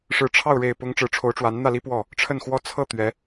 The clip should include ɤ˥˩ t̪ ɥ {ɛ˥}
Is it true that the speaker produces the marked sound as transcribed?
no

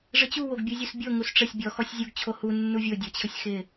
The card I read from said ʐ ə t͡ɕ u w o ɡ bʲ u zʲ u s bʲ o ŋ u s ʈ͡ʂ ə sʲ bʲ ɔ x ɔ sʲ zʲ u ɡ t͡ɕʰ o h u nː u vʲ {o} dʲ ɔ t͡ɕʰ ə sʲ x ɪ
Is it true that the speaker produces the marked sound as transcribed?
yes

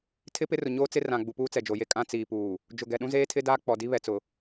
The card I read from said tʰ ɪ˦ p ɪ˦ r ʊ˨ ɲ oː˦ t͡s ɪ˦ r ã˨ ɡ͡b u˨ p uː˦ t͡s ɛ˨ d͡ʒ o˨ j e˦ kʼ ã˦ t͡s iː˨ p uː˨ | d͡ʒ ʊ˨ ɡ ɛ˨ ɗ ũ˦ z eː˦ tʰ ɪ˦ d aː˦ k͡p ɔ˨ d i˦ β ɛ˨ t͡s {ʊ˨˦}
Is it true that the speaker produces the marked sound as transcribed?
no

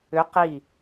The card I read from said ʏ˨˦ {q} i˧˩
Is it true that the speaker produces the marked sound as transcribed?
yes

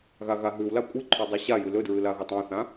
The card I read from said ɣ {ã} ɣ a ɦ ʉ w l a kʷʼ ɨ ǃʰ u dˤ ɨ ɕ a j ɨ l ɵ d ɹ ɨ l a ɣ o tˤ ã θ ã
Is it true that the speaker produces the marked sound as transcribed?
no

